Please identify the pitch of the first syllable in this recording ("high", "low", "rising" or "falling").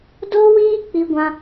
high